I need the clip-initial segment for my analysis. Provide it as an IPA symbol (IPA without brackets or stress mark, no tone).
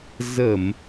z